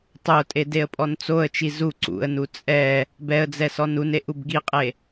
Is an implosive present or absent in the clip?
absent